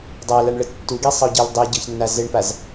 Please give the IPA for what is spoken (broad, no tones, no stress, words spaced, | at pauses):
dˤalaɳɭə tːuɡisˤəo̯ɟel dˤeɟɤçnːa zɘɳpaz